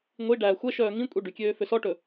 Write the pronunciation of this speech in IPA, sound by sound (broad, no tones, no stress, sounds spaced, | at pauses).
ŋʷ i ɖ æː xʷ ɛ ʃ œː ŋ ĩ kʷʼ i ɖ y kʲ øː f ø s ɔ ʈ ɵ